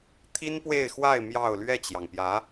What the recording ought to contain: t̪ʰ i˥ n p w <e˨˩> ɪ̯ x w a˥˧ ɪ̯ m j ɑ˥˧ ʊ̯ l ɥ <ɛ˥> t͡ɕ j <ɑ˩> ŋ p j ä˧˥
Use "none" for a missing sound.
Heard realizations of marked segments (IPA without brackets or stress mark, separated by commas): e˥˧, ɛ˥˩, ɑ˩